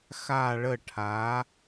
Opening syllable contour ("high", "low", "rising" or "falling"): falling